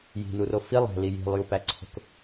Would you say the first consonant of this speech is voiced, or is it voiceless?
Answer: voiced